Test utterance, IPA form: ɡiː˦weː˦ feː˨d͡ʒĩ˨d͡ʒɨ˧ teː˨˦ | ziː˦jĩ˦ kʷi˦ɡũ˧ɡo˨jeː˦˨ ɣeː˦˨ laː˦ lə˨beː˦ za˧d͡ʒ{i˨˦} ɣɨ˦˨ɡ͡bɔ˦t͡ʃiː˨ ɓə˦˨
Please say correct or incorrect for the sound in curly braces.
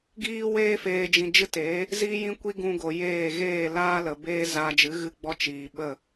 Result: incorrect